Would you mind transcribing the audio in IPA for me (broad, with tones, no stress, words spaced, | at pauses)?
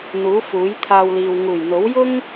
n̪uː˨˥fuː˨˥j t̪ʰaː˧wliː˨w ŋuː˨˩jn̪o˨˥wjʊ˥ŋ